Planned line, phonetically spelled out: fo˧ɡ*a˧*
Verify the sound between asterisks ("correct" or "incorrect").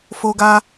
correct